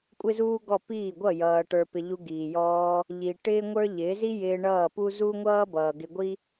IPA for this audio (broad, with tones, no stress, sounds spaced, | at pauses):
kʷʼ ɪ˦ z uː˦ ɡ ɔ˦˨ p iː˦˨ ɡʷ ʌ˦˨ j ʌː˧ ʈ ə˞˧ p ɪ˧ ʎ u˧ ɡ iː˨ j ɔː˧ | ʎ i˨ ʈ ɪː˦ ŋʷ ə˞˦ ʎ ɪː˨˦ z i˦ j ɪː˧ ɳ ʌː˦˨ p u˦ z u˦ ŋʷ ʌː˦ b ʌː˨ ɡ ɪ˧ ɡʷ i˦